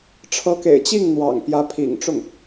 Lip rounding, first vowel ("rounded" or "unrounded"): unrounded